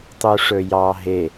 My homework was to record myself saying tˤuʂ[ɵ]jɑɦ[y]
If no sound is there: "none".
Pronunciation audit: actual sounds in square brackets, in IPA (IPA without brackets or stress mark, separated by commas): ɵ, e